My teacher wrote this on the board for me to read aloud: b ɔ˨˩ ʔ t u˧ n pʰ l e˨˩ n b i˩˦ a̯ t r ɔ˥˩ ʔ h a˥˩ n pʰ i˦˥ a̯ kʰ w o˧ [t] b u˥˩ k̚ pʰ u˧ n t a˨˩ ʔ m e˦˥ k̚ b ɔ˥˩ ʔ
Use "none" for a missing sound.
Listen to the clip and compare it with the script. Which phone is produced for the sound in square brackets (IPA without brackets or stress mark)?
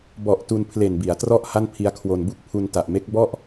n